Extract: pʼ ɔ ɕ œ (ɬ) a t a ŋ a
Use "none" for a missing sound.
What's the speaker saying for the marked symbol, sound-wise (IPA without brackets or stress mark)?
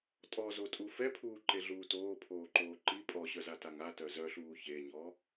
z